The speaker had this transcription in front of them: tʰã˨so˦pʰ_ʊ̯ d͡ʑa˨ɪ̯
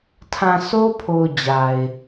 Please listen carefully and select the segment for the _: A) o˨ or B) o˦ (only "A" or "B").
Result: A